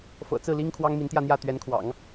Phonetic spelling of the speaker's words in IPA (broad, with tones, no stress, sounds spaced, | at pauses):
f ɤ̰˨˩ t͡s ɹ̩˥˩ l i˥ ŋ kʰ w ɑ˥ ŋ m i˧˥ n t̪ j ä˥˧ n̪ j ä˥˩ t̪ ɥ ɛ˧˥ n kʰ w ɑ̰˨˩˦ ŋ